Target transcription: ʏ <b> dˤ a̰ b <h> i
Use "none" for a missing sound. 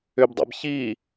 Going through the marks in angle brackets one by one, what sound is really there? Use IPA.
b, ç

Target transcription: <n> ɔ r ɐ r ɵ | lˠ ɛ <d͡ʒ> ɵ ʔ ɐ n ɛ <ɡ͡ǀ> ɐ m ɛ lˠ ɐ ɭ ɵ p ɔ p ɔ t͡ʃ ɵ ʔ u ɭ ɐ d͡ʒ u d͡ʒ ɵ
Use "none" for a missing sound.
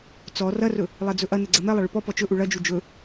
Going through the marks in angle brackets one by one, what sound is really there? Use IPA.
t͡s, d͡z, ɡ͡ǀ

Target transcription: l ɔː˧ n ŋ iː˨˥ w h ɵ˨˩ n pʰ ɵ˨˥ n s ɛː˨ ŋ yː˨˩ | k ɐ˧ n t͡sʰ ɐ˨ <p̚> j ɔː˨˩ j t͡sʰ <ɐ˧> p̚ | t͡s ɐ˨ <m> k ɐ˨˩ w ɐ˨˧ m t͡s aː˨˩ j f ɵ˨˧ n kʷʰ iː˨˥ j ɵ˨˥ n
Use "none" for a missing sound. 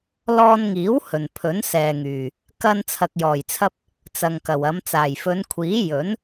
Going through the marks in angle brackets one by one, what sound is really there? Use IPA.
k̚, ɐ˧, ŋ

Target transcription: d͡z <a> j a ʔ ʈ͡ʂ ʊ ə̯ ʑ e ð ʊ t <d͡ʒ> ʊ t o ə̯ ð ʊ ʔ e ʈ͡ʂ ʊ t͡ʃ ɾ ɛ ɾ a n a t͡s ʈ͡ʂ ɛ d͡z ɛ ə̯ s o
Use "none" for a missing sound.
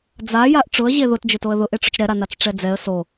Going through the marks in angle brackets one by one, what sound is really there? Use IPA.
a, d͡ʒ

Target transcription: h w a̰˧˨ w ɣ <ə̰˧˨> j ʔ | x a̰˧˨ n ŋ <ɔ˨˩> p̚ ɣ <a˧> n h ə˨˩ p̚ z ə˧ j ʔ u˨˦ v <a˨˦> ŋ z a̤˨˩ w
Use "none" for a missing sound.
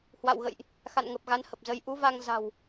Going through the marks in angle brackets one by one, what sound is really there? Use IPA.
ə̰˧˨, ə˨˩, a˨˦, a˧

